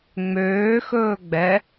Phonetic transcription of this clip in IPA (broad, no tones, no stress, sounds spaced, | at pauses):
ŋ͡m øː x ɵː ɡ͡b ɛ